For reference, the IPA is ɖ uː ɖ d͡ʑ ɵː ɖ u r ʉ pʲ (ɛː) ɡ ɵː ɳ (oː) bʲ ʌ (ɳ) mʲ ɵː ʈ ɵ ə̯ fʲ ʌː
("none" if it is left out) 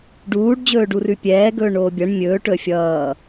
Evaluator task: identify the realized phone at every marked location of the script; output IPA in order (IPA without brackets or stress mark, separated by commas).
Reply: ɛː, oː, ɳ